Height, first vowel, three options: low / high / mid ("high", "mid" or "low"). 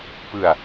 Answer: high